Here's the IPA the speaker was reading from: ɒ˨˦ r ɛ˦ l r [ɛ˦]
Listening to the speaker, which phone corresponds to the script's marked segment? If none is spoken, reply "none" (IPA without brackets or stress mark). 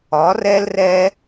ɛ˦